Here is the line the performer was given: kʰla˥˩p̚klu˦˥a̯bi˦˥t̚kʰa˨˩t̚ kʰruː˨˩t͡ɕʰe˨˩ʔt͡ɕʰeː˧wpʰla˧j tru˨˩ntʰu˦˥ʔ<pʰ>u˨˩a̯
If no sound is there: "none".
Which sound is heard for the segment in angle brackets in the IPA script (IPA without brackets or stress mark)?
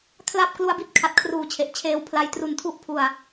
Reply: pʰ